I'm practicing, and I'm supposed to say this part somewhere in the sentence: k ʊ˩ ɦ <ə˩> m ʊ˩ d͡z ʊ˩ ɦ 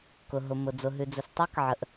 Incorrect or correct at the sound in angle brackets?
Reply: incorrect: ʊ˩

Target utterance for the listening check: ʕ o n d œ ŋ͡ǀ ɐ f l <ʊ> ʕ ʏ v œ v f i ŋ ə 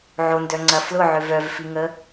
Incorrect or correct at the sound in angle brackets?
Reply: correct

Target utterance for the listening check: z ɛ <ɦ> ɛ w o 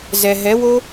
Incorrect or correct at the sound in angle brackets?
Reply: correct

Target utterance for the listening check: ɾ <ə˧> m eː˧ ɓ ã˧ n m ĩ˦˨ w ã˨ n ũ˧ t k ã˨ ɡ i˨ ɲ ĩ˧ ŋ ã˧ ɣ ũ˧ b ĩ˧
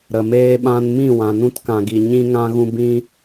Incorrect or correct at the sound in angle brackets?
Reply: incorrect: ə˨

